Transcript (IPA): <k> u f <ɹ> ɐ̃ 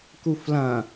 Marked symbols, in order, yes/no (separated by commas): yes, no